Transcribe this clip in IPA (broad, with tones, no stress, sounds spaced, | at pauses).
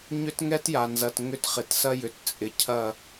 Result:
ɲ ʏ˦ t ŋ ɛ˦ t j a˨ n z ɐ˨ t ŋ ʏ˦ t χ ɪ˨ t s ɐ˦ j ʏ˨ t t͡sʼ ɪ˨ cʰ ɐ˦˨